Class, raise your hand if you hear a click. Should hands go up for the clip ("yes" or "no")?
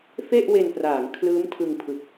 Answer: no